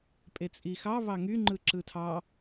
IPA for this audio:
pʼ e t͡sʼ i x ɑ β ɑ ŋ y ŋ͡ǃ ɯ ǁ ɯ tʰ ɑ

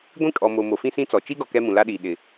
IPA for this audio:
ɡʷ ĩ˦ kʼ ɔ˨ m o˨ m o˨ f ĩ˦ s ĩ˦ t͡s ɔ˨ t͡ʃ i˦ ɡ ɔ˨ k ɛ˦ m ũ˨ l a˦ ɗ iː˨ ɗ ɪ˨

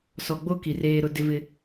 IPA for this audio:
s ɔ˨ ɡ͡b o˦ k i˨ r eː˦ ɾ ʊ˦ d ɪ˦ v ɪ˦

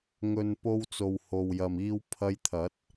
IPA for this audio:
ŋ ɵ˨ n p o˧ w t͡s o˨ w h o˨ w j ɐ˨ m iː˧ w pʰ ɐ˧ j t̪ʰ ɐ˨˥ t̚

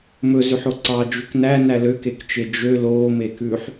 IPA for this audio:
m ɵ z ʉ ħ o ǀ ɑ d͡ʒ ʉ k n æ n æ l ø k e k t͡ʃ e d͡ʒ ø l oː m eː k ʉː ħ

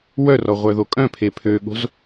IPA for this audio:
w œ r ɔ ʁʷ œ ð o kʼ œ̃ pʰ e pʰ ø ɠ o̤ z

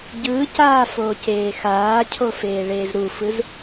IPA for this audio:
ɟ ɯː c aː f oː c eː x aː cʰ o f eː ɭ eː z ɾ u f ɯ z

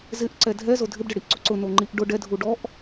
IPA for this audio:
z ɪ ʔ ǀ ɛ dʱ ɛ z o dʱ ɪ b ɖ ɪ ɽ i ʔ ǀ o ǀ ʊ n o ŋ͡ǃ i ʔ ɖ ʊ ɖ ɛ dʱ u ɖ ɔ ʔ

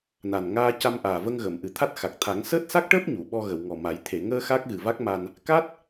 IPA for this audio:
n a˨˩ n ŋ aː˧ c a˧ m ʔ aː˨˩ v ə˧ ŋ ɣ əː˨˩˨ m ʔ ɨ˨˩ t̪ʰ a˦˥ t̚ x a˨˩ k̚ t̪ʰ a˨˩˦ ŋ s əː˦˥ t̚ s a˦˥ k̚ ʈ əː˦˥ p̚ ɲ u˨˩˨ ɓ ɔ˧ ɣ ə˨˩˨ w ŋ ɔ˨˩ m a˨˩˦ j t̪ʰ e˨˩˨ ŋ əː˧ x a˦˥ k̚ ɣ ɨ˨˩ v a˦˥ k̚ m a˧ n | k a˦˥ t̚

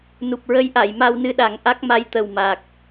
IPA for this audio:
n u˨˩ p̚ ɹ ə˧˥ j ʔ a˨˩˨ j m a˧ w n ɨ˧ ɗ a˨˩˦ ŋ ʔ a˦˥ k̚ m a˧ j t̪ ə˨˩ w m a˨˩ k̚

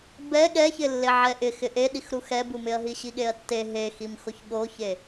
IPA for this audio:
b ɛ ɠ ɛ ç ɪ lː e ʕ ɛ ʔ ɪ x ɪ ʔ e ɗ i x ɾ u x ɛ b u m ɪ ɐ̯ ɦ i ɕ i ɠ e ɐ̯ tː e ɦ e x i m x o ç ɠ o ç e

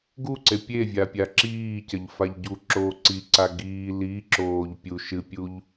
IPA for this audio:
ɡ u ǀ e pʲ e vʲ a pʲ a ǁ iː c ɐ ʎ f a ʎ ɟ u ǁ oː ǀ i ǀ a ɡ iː l i ǁ oː ʎ pʲ u ʃ ɨ pʲ u ʎ

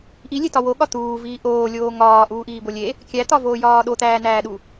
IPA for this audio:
ʔ i lʲ e t ɒ w o ɠ ɒ t̪ uː v iː ʔ oː lʲ oː ŋ ɒː ʔ uː ʔ iː b o lʲ e | kʲ æ t̪ ɒ v oː j ɒː ɗ o t̪ æː n æː ɗ u

